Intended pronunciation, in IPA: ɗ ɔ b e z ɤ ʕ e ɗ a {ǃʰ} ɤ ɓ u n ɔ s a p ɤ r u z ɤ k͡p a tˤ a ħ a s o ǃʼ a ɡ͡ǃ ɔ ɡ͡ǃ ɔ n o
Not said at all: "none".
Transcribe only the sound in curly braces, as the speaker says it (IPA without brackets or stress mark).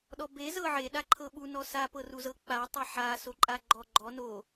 ǃʰ